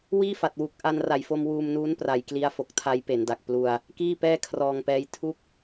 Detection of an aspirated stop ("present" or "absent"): present